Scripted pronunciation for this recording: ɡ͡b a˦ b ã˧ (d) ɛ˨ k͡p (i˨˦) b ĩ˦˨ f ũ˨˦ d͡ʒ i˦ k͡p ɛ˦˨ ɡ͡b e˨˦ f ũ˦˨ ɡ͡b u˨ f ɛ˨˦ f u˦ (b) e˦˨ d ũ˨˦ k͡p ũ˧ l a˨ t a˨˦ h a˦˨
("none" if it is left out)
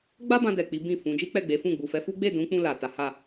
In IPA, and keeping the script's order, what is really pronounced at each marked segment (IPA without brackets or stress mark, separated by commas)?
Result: d, i˨˦, ɡ͡b